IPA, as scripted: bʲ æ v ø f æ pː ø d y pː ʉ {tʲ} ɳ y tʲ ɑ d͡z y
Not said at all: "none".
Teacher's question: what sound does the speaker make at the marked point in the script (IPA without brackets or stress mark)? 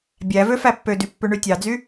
none